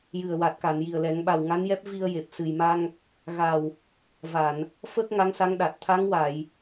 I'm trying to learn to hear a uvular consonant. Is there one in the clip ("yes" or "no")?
no